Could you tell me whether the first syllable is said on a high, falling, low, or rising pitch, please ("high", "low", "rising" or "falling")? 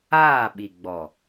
falling